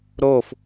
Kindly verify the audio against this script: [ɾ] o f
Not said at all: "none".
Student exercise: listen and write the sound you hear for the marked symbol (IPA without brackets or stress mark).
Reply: ɾ